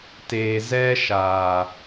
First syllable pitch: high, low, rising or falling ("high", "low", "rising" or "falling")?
low